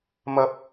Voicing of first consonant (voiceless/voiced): voiced